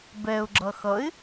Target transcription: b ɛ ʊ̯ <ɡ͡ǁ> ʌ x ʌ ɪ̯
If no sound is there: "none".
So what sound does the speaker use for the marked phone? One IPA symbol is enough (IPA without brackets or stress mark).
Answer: ɡ͡ǁ